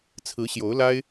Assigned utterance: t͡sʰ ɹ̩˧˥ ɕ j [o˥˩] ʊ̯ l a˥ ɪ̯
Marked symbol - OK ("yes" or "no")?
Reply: no